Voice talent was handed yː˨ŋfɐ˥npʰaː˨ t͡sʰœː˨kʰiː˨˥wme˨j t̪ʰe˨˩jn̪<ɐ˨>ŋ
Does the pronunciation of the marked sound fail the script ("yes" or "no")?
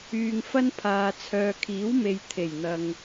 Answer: no